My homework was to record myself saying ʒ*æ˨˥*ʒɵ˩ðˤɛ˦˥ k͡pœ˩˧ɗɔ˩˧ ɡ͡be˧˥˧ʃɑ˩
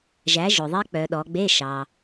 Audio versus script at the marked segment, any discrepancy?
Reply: no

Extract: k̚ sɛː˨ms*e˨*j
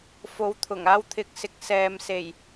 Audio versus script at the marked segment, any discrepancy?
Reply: yes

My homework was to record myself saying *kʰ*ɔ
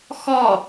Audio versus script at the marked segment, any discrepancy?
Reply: yes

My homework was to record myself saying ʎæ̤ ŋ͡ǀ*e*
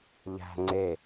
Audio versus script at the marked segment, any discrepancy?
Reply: no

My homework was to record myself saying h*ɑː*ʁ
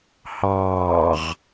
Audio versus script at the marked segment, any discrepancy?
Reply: no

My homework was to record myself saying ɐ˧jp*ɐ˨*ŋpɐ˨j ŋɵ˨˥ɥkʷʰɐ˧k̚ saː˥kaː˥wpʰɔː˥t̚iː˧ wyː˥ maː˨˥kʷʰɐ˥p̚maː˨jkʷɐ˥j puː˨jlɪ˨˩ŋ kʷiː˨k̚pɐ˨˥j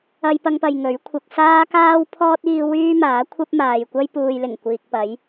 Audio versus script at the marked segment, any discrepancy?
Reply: yes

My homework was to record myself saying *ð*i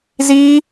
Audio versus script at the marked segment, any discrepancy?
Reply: yes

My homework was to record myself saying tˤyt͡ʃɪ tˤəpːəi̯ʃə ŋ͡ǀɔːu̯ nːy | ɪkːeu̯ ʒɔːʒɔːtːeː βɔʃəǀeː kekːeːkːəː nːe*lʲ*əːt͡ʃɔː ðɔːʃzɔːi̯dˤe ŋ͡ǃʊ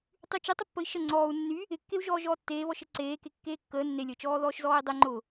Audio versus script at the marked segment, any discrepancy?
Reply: no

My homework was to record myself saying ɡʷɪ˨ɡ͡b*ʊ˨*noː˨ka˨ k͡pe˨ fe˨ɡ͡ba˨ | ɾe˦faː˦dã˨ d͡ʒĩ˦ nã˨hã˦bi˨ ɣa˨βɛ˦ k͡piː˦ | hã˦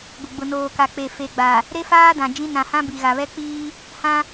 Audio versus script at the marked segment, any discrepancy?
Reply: no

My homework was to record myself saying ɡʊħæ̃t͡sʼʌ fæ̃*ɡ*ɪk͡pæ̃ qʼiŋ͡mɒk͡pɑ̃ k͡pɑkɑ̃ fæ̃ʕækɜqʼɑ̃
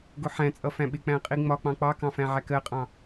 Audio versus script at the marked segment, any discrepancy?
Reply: yes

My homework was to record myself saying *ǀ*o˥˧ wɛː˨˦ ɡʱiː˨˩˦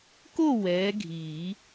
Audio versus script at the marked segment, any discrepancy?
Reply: yes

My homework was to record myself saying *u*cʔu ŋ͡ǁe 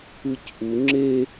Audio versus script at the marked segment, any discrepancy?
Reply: yes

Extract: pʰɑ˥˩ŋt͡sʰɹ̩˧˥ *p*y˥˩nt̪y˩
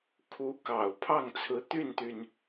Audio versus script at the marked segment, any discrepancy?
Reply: yes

